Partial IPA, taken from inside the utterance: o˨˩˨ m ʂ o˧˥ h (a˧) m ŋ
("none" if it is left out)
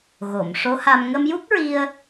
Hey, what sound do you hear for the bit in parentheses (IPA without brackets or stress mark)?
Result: a˧